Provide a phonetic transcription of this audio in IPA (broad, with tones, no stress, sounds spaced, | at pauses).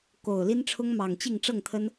k o˨˩ ʊ̯ l i˦ n ʈ͡ʂʰ ʊ˦ ŋ m ɑ˨˩ ŋ t͡ɕ i˥˨ ŋ ʈ͡ʂ ɤ˥˨ ŋ t̪ʰ ə˦ n